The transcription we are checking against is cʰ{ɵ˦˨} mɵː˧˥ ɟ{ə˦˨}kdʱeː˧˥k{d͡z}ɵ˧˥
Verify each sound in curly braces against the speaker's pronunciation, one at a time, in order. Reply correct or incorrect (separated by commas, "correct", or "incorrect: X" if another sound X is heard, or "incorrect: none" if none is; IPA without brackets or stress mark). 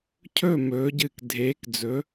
correct, incorrect: ɨ˦˨, correct